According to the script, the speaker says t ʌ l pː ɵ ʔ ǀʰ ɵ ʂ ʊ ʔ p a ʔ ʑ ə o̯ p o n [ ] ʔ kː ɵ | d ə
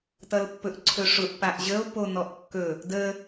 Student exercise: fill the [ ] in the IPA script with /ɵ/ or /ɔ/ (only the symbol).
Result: ɔ